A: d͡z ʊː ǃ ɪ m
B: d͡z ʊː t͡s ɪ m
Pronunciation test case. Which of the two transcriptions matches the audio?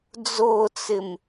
B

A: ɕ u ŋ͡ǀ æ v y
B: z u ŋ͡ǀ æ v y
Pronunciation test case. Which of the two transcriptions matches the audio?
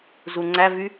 B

